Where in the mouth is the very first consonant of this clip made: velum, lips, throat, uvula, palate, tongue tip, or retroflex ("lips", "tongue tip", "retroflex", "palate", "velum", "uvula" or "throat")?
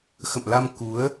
velum